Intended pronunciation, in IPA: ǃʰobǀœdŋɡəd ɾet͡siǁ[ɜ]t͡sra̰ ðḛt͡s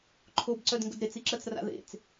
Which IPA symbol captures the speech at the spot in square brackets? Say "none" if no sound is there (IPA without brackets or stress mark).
ɜ